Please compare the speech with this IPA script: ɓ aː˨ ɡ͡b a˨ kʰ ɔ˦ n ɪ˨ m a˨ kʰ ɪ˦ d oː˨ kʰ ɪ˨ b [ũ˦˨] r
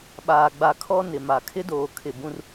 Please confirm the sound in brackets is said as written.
no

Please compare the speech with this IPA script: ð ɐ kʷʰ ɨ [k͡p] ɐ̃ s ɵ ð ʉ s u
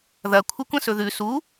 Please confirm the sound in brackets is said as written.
no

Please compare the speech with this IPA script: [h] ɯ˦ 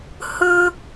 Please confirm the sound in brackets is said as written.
yes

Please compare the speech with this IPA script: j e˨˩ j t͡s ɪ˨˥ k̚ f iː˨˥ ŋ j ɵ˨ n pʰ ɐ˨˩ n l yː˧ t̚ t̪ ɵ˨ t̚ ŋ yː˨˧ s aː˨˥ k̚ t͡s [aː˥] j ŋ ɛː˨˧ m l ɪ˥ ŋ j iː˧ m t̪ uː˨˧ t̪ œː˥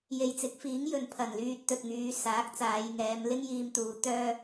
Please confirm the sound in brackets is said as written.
no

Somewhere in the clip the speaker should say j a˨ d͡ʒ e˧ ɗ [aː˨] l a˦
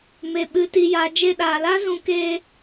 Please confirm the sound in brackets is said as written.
yes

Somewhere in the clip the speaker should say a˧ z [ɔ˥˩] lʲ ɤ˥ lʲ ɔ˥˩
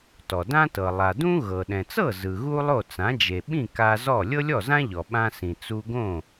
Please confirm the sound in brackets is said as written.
yes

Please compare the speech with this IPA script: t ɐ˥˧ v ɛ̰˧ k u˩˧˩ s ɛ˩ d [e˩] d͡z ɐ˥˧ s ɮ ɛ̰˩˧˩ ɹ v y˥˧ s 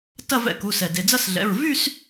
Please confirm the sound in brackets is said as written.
yes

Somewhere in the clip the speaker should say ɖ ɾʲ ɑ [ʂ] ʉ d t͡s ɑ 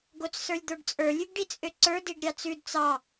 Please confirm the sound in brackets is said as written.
no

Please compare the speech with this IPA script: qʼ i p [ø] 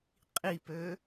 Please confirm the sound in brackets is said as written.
yes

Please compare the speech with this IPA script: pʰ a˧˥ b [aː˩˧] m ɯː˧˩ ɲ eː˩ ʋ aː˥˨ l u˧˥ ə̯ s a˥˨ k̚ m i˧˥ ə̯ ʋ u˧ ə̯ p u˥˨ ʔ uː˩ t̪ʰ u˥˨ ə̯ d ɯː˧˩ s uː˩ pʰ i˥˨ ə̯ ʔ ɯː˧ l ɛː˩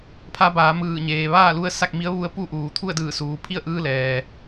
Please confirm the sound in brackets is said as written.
yes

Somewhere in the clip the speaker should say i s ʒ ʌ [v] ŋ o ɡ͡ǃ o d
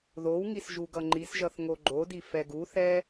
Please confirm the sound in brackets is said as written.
no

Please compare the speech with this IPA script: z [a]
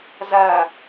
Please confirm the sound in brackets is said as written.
yes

